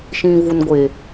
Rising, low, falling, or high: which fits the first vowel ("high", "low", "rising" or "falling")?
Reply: low